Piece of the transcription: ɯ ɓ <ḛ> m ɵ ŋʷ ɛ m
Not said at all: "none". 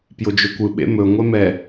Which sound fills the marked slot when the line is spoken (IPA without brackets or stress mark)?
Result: ḛ